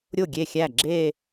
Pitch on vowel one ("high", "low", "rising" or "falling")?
falling